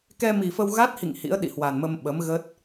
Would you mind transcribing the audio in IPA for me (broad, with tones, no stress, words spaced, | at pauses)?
kɛ˧mi˨˩fə˧w ɣa˦˥t̚hḭ˧˨ŋ hḭ˧˥ə̯ɗḭ˧˨hwa˨˩n mə˧mɓə˨˦m ɣə˦˥t̚